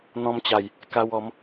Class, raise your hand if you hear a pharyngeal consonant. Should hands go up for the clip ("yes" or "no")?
no